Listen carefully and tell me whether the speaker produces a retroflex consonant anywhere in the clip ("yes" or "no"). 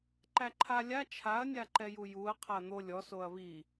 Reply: no